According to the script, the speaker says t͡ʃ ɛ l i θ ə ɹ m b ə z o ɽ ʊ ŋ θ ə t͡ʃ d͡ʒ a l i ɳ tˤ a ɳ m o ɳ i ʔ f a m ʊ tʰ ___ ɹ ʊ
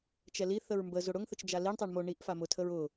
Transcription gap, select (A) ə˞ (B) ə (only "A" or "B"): B